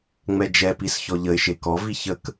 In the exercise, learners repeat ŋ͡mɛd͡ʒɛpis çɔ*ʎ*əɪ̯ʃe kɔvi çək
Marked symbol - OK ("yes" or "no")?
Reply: yes